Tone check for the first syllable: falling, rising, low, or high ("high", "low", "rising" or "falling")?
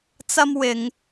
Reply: high